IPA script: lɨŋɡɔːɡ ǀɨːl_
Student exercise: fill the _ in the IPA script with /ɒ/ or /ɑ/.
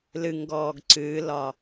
ɒ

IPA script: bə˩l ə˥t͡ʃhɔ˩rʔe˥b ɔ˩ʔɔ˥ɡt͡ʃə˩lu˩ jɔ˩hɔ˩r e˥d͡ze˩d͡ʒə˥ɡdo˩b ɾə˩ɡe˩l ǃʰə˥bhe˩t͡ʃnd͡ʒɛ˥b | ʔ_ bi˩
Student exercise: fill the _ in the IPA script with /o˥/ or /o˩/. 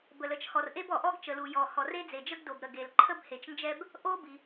o˥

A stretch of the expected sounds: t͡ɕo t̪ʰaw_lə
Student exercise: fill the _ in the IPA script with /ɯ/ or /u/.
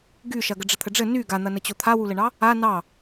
u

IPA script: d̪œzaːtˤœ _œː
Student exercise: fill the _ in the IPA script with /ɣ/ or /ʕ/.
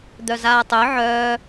ʕ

